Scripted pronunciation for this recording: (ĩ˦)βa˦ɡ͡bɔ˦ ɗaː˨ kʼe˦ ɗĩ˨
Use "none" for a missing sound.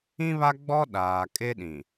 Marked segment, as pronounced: ĩ˦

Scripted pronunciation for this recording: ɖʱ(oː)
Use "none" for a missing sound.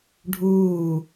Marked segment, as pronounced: uː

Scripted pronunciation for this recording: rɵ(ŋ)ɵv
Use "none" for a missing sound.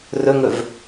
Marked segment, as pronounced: ŋ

